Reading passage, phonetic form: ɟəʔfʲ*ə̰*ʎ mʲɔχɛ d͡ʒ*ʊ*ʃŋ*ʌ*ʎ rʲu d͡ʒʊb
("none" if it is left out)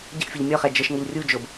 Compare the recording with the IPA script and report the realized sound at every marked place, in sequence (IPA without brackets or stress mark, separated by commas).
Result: ə, ə, ʌ